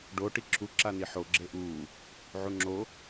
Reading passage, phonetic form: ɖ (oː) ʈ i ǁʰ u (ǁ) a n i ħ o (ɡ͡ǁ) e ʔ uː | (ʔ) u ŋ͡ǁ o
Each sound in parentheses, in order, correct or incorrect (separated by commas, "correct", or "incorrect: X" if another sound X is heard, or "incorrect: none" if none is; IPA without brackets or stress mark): incorrect: o, correct, correct, incorrect: ʕ